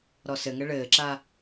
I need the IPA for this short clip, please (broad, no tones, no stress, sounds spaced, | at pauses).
ɾ ɔ s ɘ ŋ ɘ ɭ ɘː ǁ a